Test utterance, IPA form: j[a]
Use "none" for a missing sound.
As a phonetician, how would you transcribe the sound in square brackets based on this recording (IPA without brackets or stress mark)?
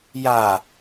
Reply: a